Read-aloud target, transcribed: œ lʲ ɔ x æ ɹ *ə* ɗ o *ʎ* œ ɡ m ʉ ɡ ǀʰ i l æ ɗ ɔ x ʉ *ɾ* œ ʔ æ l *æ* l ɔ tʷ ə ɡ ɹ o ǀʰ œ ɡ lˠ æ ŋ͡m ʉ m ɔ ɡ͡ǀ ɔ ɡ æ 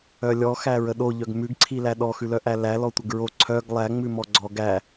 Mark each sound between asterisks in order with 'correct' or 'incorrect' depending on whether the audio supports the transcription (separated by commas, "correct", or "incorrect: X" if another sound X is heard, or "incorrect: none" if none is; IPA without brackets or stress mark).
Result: correct, correct, incorrect: l, correct